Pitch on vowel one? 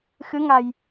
rising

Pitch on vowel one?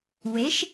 rising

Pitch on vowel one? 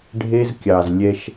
high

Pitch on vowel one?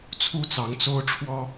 high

